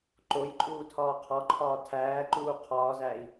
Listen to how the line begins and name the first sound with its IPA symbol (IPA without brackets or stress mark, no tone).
ǃ